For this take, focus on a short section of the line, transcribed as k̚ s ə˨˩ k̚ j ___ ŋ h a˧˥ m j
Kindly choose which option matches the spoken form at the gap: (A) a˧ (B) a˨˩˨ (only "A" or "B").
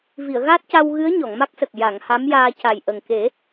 B